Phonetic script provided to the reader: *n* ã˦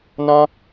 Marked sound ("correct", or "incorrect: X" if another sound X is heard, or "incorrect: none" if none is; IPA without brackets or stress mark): correct